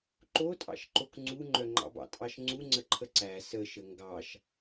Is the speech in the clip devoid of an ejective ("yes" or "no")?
no